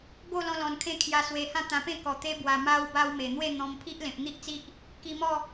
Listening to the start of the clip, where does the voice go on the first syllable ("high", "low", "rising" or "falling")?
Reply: falling